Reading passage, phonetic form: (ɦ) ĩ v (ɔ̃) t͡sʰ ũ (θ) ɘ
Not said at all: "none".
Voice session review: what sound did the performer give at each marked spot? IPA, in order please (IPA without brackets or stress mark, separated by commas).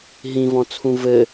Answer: ɦ, ɔ̃, v